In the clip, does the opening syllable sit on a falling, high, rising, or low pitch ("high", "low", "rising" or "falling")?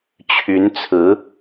rising